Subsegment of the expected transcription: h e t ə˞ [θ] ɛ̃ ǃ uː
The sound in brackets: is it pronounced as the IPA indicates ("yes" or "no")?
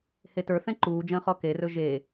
yes